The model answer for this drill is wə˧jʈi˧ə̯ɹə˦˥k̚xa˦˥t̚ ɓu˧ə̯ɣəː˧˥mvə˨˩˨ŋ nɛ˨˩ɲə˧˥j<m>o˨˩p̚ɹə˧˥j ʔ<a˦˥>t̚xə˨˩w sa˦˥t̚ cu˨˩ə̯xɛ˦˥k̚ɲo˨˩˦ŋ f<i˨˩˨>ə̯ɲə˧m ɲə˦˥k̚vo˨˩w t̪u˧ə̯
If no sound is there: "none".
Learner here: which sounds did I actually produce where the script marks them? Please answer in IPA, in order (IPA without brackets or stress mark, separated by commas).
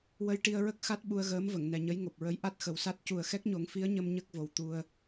ŋ, a˦˥, i˧˥